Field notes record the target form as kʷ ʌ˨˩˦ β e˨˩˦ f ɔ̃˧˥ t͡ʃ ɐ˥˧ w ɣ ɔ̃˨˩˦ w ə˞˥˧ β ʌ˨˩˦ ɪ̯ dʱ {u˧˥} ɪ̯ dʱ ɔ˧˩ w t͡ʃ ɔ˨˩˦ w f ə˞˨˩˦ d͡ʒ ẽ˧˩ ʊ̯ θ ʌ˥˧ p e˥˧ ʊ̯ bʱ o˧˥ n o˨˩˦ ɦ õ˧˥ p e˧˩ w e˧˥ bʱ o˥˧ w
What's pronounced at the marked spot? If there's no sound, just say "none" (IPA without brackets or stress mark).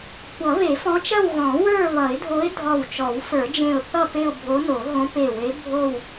o˧˥